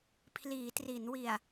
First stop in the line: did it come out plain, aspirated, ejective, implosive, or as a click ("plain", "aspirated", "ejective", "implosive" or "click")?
aspirated